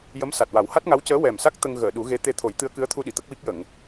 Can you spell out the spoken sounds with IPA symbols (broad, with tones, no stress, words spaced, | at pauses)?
jə˧˥m sa˨˩t̚wa˨˩˦wha˦˥t̚ŋa˧˥w cəː˧˥wɛ˨˩msa˦˥k̚ t̪ə˧ŋ ɣəː˨˩˨ ɗu˨˩˦ɣe˧˥ t̪e˧t̪ʰo˨˩˦jt̪ɨ˧˥ə̯ kɨ˧˥ə̯t̪ʰu˧ɗi˨˩˨ t̪ə˦˥k̚wi˦˥k̚jə˨˩˨ŋ